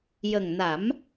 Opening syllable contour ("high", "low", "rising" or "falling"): low